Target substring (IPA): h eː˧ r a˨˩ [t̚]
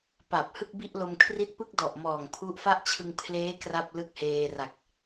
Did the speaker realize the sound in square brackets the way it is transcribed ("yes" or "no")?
no